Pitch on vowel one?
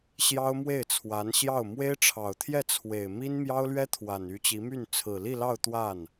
high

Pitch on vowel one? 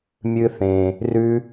high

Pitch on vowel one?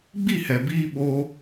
falling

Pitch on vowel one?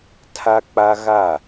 high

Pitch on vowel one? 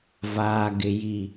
low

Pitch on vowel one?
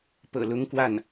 low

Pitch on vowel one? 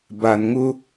low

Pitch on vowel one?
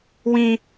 low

